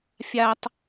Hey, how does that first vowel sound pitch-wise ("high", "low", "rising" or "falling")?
high